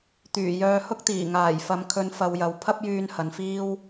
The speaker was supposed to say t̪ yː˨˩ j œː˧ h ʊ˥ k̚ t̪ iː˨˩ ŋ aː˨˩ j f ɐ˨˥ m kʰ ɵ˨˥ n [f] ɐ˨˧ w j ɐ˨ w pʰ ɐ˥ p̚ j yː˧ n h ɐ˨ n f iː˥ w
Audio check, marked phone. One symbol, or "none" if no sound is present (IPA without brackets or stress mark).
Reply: f